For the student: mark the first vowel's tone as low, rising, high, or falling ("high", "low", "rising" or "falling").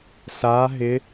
rising